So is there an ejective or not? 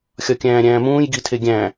no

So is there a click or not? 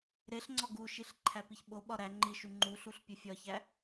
yes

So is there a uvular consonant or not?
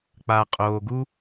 yes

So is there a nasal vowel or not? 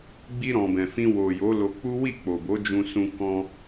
yes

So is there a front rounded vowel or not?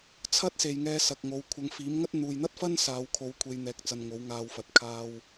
no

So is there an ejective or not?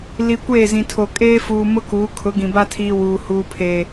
yes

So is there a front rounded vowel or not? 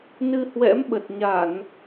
no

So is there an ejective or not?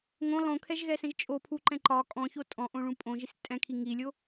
yes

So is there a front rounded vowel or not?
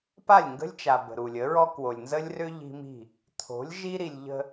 yes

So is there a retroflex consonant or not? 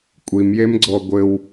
no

